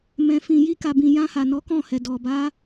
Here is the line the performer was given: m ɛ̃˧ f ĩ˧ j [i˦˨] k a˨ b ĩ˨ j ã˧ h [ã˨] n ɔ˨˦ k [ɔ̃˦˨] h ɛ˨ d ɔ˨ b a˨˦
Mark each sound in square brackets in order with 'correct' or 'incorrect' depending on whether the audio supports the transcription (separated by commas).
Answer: incorrect, incorrect, correct